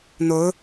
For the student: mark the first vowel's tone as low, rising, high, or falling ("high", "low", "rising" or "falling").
rising